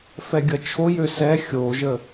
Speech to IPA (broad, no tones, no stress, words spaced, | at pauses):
fɛɡʲʌt͡ʃʰojø sɛ xʲoʒə